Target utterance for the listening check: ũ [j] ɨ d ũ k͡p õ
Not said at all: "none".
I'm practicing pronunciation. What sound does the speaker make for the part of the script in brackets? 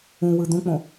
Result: w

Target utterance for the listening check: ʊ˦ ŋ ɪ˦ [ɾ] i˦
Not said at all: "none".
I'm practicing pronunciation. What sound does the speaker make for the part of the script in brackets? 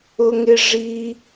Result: ʐ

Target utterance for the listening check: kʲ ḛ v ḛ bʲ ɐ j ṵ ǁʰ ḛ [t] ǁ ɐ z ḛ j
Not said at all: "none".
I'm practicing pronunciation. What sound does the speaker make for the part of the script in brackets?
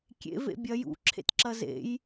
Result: t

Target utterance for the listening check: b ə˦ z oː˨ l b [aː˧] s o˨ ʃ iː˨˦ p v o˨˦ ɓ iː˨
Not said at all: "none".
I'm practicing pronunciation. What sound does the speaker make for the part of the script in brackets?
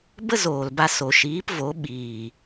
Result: a˧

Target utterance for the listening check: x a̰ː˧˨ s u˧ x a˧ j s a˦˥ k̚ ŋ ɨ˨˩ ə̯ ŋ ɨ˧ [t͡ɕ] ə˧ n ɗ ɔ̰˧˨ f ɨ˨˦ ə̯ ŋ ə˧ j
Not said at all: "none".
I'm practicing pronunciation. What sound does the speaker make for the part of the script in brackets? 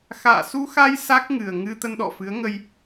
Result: t̪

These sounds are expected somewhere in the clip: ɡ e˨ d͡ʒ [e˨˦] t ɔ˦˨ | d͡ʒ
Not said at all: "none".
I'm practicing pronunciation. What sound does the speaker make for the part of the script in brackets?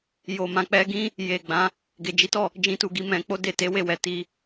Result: i˨˦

